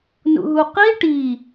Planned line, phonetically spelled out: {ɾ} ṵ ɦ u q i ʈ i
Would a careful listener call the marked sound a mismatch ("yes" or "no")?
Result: yes